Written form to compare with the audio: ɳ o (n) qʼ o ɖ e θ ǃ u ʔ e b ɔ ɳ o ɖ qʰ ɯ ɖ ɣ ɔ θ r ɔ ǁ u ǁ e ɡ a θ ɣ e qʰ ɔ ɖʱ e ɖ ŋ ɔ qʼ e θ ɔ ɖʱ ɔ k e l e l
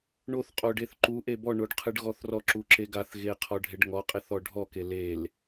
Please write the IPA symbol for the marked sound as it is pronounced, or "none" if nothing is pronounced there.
θ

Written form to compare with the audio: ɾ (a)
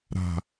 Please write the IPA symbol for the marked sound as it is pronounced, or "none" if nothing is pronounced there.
a̤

